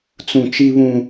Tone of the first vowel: low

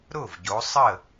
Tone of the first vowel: falling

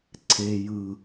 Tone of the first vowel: low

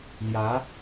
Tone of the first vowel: rising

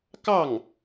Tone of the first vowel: falling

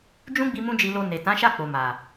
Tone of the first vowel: high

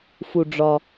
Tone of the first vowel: low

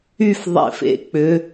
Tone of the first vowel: falling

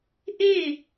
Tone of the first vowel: falling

